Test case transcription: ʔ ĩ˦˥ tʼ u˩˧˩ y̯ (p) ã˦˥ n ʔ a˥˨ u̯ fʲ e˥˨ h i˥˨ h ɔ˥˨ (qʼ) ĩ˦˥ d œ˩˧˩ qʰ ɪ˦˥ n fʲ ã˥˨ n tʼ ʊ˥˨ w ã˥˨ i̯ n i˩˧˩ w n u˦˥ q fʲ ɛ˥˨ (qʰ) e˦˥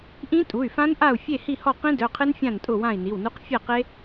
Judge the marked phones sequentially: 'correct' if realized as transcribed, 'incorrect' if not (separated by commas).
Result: incorrect, incorrect, incorrect